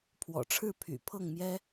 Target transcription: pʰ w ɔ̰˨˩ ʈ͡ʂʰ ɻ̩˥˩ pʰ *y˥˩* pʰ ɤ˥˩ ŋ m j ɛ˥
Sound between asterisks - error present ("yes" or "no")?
yes